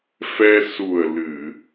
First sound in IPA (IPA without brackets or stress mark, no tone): f